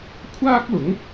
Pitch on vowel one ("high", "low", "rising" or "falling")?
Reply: high